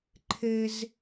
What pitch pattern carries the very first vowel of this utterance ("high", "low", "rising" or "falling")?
high